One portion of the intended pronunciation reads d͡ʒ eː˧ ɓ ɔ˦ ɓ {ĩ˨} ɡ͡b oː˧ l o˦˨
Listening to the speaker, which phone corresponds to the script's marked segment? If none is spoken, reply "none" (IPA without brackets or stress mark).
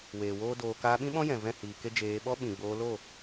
ĩ˨